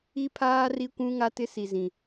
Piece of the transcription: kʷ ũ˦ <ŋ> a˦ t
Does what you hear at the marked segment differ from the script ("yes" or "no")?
no